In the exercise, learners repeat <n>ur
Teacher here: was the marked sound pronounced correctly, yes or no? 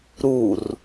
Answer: no